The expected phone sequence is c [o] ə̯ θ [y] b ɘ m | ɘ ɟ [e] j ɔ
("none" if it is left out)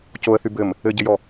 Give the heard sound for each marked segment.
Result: o, y, ɘ

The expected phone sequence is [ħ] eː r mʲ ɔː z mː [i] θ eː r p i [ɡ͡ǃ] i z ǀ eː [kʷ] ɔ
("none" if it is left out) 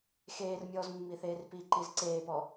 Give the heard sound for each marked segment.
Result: x, i, ǃ, p

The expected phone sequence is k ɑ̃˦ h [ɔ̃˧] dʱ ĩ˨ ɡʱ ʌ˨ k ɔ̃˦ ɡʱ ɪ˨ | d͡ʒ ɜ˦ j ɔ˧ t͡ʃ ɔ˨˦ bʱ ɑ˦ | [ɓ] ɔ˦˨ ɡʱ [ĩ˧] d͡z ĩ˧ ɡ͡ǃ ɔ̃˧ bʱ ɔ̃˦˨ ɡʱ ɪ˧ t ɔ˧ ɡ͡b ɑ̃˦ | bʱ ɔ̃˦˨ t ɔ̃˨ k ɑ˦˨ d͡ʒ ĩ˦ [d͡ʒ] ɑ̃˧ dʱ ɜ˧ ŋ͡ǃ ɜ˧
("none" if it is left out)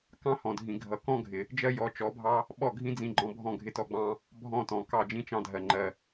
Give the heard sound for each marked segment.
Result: ɔ̃˨, ɓ, ĩ˦, t͡ʃ

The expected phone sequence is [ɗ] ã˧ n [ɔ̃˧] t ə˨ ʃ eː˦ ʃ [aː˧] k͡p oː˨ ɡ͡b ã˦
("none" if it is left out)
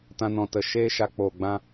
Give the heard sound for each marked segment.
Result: t, ɔ̃˨, a˧

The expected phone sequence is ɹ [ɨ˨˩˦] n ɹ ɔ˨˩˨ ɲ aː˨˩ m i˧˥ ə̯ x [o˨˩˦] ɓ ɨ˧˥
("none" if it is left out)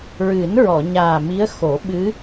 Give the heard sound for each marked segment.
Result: ɨ˨˩˦, o˨˩˦

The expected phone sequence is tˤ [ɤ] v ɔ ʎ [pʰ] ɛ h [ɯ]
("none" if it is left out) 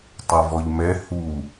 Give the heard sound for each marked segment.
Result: ɤ, m, u

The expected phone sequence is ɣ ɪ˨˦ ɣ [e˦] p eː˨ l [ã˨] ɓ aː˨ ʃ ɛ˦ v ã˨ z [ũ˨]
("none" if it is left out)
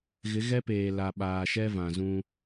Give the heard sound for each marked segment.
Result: ɛ˦, a˨, ũ˦

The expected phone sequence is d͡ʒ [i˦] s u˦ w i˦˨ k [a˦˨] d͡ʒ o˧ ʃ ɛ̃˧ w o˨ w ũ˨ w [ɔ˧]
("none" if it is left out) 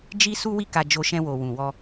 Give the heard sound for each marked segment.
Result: i˦, a˧, ɔ˧

